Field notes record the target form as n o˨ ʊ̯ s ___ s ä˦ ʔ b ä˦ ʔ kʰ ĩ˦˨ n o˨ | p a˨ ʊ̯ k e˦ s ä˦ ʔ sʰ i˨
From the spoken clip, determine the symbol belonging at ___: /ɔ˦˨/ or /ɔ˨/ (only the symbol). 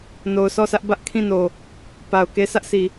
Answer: ɔ˦˨